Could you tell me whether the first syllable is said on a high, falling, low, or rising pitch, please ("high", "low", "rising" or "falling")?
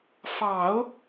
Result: low